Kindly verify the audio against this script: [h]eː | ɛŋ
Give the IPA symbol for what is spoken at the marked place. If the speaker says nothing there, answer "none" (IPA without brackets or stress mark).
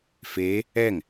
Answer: f